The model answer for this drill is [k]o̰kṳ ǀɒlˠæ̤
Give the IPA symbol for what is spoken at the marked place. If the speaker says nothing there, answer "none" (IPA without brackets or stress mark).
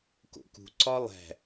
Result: k